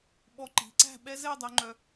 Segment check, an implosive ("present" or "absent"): present